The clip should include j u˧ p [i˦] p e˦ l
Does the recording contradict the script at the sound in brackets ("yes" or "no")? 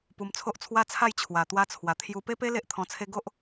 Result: yes